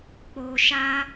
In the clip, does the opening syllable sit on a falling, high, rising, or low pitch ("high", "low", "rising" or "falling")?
low